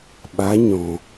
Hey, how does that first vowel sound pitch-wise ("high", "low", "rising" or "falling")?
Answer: rising